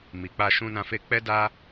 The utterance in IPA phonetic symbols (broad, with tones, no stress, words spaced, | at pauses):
mi˨k͡pa˧ ʃũ˧nã˧fe˧k͡pɛ˦ da˦